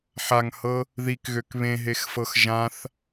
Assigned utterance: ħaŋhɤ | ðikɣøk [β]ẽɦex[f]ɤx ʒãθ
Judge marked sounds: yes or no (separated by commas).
yes, yes